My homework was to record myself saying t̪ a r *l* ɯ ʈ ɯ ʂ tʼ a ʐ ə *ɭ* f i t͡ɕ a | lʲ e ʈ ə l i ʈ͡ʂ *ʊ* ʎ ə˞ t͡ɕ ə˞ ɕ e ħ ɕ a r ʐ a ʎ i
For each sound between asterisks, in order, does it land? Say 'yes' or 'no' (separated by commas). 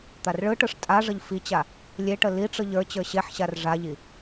no, no, no